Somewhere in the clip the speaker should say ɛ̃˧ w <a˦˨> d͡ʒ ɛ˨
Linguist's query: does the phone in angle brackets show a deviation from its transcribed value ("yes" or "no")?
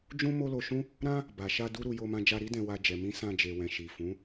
yes